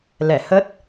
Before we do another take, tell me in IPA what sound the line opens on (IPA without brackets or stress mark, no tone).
l